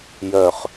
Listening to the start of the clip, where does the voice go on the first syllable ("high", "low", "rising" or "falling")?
low